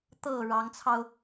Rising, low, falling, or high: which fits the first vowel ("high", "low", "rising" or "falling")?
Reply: low